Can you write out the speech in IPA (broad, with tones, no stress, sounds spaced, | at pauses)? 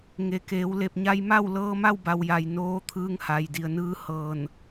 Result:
ŋ e˩˧ k eː˩˧ w l e˧˩ p̚ ɲ a˧ j m a˥˨ w l ɤː˧ m a˥˨ w b a˩ w j a˩ j n oː˧˥ t̪ʰ ɯː˧ ŋ h a˩ j d i˩ ə̯ n ɯː˧ h ɤː˧˩ n